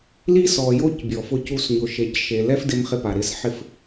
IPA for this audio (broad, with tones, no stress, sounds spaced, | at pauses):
l i˦ s ɔ˨ j o˦ c bʲ ɔ˨ f ʊ˦ c u˦ s ɲ ʊ˨ ʃ e˨ c ʃ e˨ l ɛ˦ f d ɪ˦ m χ ɪ˦ p a˨ ɾ ɪ˦ s ħ ɪ˦˨ f